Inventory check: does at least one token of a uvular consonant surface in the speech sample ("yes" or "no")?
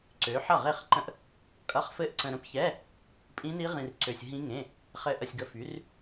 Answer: yes